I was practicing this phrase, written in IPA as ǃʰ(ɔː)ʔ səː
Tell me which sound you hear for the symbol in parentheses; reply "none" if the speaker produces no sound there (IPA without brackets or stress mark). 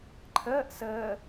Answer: əː